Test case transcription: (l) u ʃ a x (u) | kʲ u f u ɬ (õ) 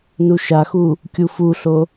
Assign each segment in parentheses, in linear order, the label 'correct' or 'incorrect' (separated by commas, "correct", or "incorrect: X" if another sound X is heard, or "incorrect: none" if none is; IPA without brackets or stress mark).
incorrect: n, correct, incorrect: o